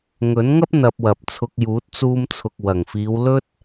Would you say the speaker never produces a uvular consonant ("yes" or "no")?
yes